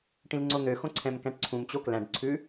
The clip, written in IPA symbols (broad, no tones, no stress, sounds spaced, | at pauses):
ʈ ĩ l ŋ͡ǀ o n̪ ø x õ ǀʰ ɛ̃ m k æ̃ ʈ ǀʰ ũ m t͡ɕ o k l æ̃ ɖ ǀʰ ʉ